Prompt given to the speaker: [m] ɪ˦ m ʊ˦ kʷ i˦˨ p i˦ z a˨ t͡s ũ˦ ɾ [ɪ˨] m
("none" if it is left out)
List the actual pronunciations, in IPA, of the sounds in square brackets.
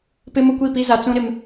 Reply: p, ɪ˨

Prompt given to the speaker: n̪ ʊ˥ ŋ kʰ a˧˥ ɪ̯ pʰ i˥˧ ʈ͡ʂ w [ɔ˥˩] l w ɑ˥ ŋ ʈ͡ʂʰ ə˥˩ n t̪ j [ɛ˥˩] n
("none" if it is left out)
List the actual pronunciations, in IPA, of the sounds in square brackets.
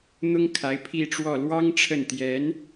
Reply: ɔ˥˩, ɛ˧˥

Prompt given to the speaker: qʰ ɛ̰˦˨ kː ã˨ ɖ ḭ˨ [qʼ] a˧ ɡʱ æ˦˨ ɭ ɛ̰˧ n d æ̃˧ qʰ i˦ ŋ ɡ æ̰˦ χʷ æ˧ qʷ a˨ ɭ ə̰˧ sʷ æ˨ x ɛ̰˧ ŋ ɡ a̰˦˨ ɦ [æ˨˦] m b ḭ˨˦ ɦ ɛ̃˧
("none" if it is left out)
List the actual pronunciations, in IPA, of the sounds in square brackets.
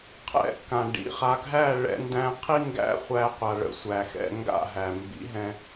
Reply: χ, æ˨

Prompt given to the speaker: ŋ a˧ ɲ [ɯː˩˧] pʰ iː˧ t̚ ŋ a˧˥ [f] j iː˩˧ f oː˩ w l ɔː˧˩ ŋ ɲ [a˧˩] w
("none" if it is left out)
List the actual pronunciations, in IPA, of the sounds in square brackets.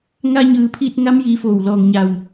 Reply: ɯː˩˧, m, a˧˩

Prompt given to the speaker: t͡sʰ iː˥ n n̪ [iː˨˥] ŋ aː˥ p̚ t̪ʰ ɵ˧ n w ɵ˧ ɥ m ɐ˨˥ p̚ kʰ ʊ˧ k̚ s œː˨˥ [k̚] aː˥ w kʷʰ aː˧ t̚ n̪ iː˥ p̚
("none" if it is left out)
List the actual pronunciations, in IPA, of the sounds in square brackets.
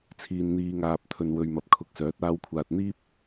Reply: iː˥, t̚

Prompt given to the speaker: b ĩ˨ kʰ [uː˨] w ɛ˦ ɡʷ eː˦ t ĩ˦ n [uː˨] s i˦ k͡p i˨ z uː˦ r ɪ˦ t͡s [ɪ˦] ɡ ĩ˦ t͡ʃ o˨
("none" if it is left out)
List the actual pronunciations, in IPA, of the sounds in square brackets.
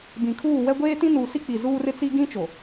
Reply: uː˦˨, uː˨, i˦

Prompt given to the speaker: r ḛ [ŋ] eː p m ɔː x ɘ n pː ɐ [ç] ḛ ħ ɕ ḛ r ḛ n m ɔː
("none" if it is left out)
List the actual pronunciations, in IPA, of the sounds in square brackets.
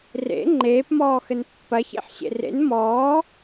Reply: ŋ͡ǃ, ç

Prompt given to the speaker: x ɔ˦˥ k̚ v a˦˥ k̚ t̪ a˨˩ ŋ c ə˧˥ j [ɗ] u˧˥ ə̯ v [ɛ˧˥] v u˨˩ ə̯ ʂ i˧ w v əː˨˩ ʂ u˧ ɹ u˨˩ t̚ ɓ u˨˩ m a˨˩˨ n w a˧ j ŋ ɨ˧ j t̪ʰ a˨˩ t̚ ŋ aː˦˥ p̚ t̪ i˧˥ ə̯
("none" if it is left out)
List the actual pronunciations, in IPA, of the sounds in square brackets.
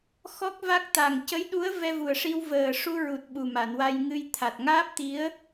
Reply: ɗ, ɛ˧

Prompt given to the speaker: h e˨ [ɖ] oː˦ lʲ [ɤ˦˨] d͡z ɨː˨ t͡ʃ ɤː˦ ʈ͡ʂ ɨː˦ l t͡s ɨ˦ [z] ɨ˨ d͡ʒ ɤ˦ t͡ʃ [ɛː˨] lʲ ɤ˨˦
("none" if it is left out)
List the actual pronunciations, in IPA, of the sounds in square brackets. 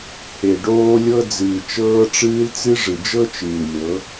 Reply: ɖ, ɤ˦, ʐ, ɨː˨

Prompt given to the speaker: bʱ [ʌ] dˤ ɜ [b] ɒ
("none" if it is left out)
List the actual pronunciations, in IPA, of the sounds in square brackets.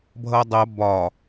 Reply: ʌ, b

